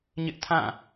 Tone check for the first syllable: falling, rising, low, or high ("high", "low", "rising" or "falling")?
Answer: high